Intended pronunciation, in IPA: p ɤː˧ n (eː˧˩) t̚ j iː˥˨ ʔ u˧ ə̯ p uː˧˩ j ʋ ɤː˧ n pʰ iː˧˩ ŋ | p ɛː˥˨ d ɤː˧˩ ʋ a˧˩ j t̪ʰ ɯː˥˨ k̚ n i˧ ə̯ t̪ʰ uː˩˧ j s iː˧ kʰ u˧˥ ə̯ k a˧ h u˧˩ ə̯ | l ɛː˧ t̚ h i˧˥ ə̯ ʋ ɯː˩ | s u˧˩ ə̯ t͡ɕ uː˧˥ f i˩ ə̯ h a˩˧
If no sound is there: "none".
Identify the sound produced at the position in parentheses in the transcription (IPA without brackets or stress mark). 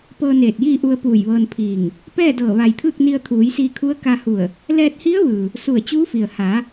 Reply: eː˧˩